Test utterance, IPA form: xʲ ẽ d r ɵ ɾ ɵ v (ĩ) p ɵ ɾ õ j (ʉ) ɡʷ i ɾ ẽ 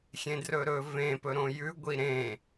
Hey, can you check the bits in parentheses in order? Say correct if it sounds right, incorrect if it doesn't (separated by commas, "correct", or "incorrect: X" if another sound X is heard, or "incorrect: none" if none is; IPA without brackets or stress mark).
incorrect: ẽ, correct